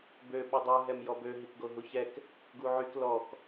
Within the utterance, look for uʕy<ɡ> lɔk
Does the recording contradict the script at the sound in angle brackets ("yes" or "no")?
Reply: yes